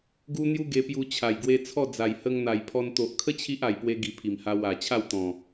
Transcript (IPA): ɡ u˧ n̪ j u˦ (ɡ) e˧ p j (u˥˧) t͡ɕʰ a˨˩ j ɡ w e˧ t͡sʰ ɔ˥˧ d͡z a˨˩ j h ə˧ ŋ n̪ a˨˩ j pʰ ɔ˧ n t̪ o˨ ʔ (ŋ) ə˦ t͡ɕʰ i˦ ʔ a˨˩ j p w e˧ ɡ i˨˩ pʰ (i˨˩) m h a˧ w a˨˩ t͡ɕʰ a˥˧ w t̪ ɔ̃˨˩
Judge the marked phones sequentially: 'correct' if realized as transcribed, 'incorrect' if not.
correct, incorrect: u˧, incorrect: kʰ, correct

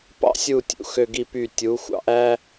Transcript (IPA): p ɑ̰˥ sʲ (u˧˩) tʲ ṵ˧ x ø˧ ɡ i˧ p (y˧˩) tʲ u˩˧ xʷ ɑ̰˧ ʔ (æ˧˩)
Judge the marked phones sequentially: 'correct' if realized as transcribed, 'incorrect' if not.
correct, correct, incorrect: æ˥

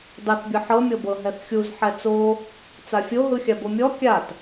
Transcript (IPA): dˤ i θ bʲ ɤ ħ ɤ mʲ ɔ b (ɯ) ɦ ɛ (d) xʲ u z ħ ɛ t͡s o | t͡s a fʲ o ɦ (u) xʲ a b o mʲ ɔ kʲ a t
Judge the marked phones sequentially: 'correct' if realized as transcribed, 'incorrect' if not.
incorrect: ɤ, incorrect: θ, incorrect: ɯ

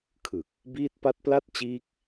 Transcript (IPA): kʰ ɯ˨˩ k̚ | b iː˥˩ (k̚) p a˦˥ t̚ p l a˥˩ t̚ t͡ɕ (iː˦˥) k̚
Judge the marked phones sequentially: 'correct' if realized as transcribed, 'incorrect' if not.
incorrect: t̚, correct

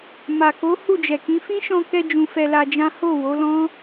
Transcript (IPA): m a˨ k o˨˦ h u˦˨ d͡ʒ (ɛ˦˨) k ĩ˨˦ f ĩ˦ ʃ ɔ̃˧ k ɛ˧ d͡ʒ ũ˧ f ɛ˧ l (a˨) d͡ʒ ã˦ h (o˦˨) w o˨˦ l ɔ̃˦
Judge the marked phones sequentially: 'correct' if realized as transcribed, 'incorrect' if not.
incorrect: ɛ˨, incorrect: a˧, correct

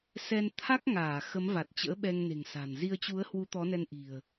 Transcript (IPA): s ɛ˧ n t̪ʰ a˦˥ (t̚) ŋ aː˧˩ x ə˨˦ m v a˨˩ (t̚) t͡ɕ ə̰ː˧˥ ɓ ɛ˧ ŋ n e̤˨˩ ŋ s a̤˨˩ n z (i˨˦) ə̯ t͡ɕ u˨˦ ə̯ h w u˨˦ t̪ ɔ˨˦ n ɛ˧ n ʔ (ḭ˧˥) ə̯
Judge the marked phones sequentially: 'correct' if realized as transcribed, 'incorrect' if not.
incorrect: k̚, correct, incorrect: i˧, incorrect: i̤˨˩

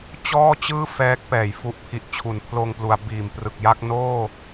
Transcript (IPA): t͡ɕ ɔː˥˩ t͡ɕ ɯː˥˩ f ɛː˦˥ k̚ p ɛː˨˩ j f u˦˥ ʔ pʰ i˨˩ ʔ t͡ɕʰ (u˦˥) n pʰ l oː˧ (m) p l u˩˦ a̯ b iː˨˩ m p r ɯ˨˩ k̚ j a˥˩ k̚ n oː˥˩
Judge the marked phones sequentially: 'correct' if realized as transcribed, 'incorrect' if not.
incorrect: u˩˦, incorrect: ŋ

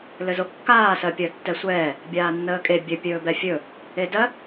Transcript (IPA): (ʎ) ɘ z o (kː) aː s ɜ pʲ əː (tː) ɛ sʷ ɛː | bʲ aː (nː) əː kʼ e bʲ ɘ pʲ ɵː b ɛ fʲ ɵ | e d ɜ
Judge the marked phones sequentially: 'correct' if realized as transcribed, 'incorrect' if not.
incorrect: l, correct, correct, correct

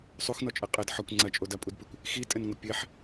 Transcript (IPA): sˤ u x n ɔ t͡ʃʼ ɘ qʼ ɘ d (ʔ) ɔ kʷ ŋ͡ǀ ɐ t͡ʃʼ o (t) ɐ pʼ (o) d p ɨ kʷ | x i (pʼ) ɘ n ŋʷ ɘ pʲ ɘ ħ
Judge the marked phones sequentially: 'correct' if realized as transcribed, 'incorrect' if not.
incorrect: ħ, incorrect: d, incorrect: u, incorrect: tʼ

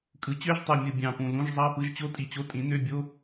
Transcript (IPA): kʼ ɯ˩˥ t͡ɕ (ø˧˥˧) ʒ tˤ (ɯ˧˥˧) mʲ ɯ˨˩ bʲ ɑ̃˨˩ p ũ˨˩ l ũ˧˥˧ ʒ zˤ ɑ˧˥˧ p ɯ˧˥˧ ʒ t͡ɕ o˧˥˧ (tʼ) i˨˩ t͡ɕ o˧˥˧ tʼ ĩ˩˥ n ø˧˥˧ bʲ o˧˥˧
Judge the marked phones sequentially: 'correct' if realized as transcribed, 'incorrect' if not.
correct, incorrect: ɯ˨˩, correct

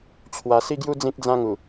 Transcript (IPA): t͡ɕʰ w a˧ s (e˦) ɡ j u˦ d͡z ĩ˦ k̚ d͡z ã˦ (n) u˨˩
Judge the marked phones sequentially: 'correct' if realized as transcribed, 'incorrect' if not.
incorrect: i˦, incorrect: ŋ

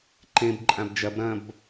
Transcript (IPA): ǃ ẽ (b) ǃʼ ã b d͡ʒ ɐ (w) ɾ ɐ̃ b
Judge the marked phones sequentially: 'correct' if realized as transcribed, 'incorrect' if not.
correct, incorrect: b

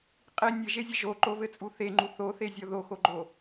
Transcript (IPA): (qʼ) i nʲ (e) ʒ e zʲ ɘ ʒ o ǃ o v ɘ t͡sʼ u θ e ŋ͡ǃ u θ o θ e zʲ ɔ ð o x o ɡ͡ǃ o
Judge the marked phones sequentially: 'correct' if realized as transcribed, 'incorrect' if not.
correct, incorrect: ɘ

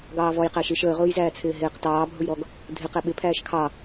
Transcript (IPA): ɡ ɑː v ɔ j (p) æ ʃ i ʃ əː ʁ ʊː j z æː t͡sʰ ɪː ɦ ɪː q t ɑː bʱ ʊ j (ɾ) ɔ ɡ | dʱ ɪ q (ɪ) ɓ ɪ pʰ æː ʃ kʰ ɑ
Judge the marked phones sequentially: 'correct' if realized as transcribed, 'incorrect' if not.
incorrect: q, correct, incorrect: ɛ

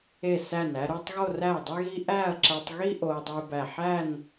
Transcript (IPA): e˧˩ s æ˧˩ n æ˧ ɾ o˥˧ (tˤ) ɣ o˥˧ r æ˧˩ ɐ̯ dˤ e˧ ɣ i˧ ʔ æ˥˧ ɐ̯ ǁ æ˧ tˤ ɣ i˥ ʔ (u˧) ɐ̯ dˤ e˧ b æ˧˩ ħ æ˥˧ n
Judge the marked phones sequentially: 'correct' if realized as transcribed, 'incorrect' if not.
correct, incorrect: o˧

